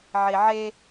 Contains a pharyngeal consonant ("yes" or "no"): yes